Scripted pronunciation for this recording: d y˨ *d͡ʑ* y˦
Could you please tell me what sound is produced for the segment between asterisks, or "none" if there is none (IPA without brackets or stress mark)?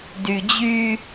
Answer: d͡ʑ